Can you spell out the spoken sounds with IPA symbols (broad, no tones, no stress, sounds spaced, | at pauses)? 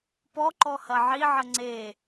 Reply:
p ɔ ǃ ɔ h ɐ ʕ i ʕ ə ŋ͡ǀ e